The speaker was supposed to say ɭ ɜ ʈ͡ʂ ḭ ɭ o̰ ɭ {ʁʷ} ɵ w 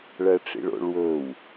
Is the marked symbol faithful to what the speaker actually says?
no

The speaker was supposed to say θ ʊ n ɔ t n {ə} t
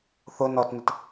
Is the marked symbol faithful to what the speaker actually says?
yes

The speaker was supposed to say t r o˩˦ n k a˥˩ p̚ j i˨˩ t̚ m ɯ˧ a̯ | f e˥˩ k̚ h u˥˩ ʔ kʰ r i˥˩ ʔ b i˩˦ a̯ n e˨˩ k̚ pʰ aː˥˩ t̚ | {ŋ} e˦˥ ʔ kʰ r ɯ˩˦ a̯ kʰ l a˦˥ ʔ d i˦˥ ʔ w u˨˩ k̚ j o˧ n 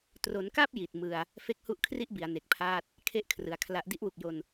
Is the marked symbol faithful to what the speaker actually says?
no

